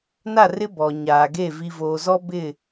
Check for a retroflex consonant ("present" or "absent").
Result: absent